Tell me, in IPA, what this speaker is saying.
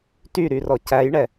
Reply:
tyɾy rɔcæjɳɛ

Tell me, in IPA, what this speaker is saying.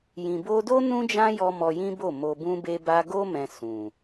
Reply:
jĩ˨bo˧do˦ nũ˦d͡ʒã˦jɔ˧ mɔ˧jĩ˦bo˦˨ mo˧bũ˦be˦ba˦ ɡo˦ mɛ̃˧sũ˨

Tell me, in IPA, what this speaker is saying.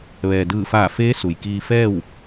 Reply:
ʋɛː˩dɯː˧˩faː˧˩feː˧˥ su˩j kiː˧fɛː˥˨w

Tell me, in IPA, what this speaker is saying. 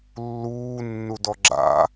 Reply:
lːuːnːudɔ ɡ͡ǁa̰

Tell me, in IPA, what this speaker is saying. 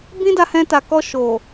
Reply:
bĩ˦da˧hɛ̃˧ ta˨kɔ˧ ʃo˨

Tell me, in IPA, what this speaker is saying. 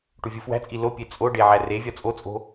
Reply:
ʈuvʲufwæ̤t͡sʼi lo pʲet͡sʼoɖe ʕærevʲɒ t͡sʼot͡sʼo̤

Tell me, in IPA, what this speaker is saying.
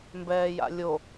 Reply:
mbɛːja̰lʲo

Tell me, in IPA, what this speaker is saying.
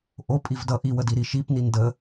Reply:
ʔo pʼivdʌ ʔiwədi ɾiʃip nində

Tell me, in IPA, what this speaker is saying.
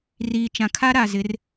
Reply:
riː˨t͡ʃã˨ kʰa˦ɾa˨zɪ˨˦r

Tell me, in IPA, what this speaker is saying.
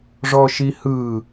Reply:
ʐɔʃihɯ

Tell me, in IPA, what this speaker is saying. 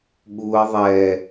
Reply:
ɠuə̯ ðˤɛ

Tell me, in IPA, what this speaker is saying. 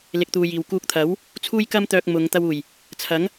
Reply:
lɪ˧k̚t̪uː˧jiː˨w kuː˧k̚t̪ʰɐ˨˥w | t͡sʰuː˥jkɐ˥mt̪œː˧k̚ mʊ˨˧ŋ t̪ɐ˧wuː˨˩j | t͡sʰɐ˨˥ŋ

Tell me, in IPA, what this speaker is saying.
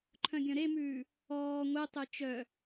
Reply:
ǃʰœ̃ɡʲœ̃ɾemʉː | ɔː ŋʷetˤe t͡ʃœ

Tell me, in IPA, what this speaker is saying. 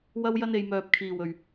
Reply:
wɐ˥wjɐ˥n e˨jmœː˨p̚kʰiː˨˩wɵ˨˩ɥ

